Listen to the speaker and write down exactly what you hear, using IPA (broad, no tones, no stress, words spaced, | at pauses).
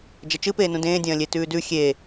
d͡ʒɐt͡ʃɨpeːnũ dẽːdʲɐ̃ː lʲetʉːdʉ xʲe